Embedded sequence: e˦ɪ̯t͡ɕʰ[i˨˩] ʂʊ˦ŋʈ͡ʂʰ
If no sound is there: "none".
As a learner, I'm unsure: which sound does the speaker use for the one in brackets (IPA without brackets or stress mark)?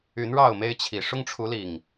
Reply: i˨˩